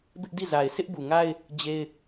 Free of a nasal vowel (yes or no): yes